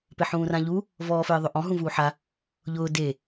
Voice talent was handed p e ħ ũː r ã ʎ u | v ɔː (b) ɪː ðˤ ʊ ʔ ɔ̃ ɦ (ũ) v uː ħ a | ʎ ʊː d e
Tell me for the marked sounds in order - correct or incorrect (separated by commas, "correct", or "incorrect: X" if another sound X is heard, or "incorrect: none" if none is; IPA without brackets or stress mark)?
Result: incorrect: f, correct